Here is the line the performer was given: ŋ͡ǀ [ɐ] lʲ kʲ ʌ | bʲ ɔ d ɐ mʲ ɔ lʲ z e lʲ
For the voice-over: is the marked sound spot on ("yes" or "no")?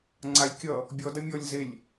no